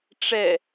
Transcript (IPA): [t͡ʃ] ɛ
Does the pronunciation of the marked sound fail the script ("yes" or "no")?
yes